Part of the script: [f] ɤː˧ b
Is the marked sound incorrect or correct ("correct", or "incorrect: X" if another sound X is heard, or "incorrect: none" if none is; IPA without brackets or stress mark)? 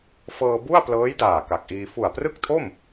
correct